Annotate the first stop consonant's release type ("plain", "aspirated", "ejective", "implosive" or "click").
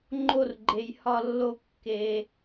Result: click